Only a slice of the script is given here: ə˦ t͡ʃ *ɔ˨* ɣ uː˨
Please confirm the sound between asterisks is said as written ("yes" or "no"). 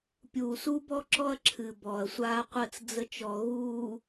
yes